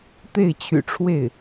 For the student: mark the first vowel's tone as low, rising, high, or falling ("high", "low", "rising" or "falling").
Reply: falling